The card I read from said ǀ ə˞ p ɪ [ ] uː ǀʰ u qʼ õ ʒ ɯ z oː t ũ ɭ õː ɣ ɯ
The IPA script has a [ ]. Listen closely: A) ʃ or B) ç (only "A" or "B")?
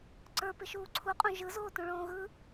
A